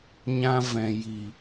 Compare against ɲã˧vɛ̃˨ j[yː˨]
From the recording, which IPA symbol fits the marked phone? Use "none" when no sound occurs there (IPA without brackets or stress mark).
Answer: iː˨